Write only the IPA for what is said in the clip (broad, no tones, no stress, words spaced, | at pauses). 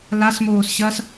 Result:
lasmoːs ɕɐs